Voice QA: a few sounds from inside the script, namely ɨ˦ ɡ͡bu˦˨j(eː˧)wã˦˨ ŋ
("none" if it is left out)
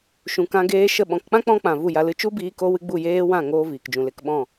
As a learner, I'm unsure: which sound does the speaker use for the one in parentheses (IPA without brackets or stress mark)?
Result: eː˦